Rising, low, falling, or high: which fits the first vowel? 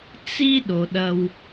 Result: high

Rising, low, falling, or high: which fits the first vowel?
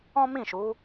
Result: high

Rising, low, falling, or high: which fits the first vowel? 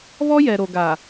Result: high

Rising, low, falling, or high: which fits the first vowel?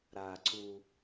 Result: high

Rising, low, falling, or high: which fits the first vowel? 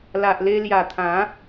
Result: low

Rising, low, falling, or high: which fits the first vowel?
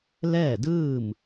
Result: falling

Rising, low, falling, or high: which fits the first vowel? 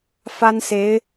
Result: high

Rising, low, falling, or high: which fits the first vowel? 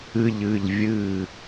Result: falling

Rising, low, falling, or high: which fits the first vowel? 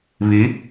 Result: rising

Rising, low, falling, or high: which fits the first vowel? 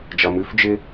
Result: low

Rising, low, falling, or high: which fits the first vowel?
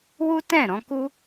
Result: high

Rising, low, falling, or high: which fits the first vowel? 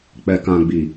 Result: low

